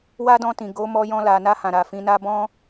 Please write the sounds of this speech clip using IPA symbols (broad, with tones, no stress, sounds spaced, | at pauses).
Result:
w a˦ d ɔ̃˧ t ĩ˨ ɡ o˨˦ m ɔ˧ j ɔ̃˧ l a˨ n a˧ h ã˨ ɾ a˨ f ĩ˧ n a˦ b ɔ̃˦